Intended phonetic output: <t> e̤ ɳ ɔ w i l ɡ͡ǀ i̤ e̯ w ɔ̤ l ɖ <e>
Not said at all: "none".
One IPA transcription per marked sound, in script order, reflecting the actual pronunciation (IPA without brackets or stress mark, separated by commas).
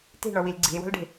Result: t, e̤